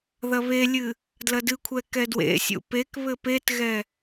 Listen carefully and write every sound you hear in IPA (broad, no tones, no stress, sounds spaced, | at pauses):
ð ɐ β e lʲ ɨ | d l ɐ d ɨ kʷʰ ɛ k ɛ d w ḛ sʲ ṵ p e k β ɘ p e t ɣ ɛ